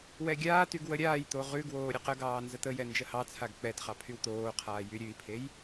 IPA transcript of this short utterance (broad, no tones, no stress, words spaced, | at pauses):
wɛɡʲaːtyɡ wəɾʲaːjt̪o ʁʉɡwoː ɾʲəqəɡɑː nzət̪əjɛ nd͡ʒəhɑt͡sʰaɡ k͡pɛtχɑ pʰywt̪oːqʰaː jyɾʲʉi̯pʰej